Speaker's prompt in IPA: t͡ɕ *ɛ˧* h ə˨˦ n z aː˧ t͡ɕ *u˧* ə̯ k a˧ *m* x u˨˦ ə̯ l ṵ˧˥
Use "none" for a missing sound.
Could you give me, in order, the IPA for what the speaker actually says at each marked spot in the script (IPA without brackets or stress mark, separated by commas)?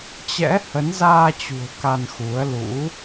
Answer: ɛ̰˧˥, ṳ˨˩, n